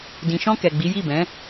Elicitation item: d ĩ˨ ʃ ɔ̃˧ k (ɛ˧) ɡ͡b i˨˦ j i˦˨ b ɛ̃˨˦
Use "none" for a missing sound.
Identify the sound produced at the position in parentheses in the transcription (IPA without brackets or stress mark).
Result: ɛ˨